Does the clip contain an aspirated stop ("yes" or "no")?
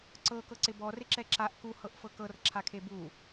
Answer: yes